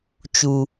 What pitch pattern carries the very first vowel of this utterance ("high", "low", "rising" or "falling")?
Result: low